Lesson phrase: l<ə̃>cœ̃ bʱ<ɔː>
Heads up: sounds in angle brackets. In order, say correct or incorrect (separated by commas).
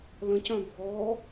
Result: correct, correct